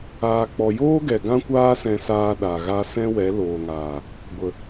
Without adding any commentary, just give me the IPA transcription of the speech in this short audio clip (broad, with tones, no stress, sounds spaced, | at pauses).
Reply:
aː˨ k͡p ɔ˨ j oː˦ ɡ ɛ˨ ɡ ã˦ kʷ aː˦ s ɛ̃˧ s aː˧ ɗ a˨ ɣ a˧ s ɛ̃˦ w ɛ˨˦ l oː˨ ŋ aː˨ | ɡʷ ə˨